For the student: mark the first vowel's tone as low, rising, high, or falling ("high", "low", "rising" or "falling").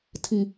low